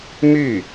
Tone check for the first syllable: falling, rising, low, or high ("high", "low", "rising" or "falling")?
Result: falling